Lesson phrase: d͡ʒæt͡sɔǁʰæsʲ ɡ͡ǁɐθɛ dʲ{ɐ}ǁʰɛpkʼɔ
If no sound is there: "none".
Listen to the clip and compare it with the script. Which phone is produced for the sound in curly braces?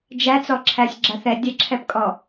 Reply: ɐ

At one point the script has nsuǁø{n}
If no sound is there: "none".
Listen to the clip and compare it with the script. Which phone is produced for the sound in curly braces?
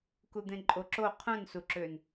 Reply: n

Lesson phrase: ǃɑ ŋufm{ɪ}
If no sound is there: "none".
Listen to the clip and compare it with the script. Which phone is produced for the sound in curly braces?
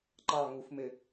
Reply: ɪ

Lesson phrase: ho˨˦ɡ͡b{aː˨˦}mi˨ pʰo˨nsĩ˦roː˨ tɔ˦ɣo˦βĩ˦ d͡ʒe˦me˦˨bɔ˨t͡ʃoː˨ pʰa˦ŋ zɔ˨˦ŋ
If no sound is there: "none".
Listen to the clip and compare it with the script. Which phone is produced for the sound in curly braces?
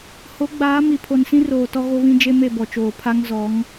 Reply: aː˨˦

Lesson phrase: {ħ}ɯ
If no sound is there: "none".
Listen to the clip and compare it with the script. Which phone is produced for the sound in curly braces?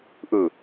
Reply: ʔ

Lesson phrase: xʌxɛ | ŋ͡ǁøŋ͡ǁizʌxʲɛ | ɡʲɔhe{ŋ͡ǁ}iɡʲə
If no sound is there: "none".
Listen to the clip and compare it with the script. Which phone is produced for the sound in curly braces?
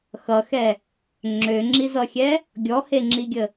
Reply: ŋ͡ǁ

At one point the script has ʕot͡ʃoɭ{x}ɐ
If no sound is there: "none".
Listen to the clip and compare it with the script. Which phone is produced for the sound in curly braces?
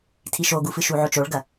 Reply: ɡ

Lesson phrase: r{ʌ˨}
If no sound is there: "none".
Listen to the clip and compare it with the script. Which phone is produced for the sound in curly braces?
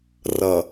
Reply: ʌ˨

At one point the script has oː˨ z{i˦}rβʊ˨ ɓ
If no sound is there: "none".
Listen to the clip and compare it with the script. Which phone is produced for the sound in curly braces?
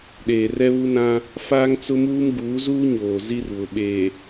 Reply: i˦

